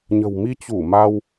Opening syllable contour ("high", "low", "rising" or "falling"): low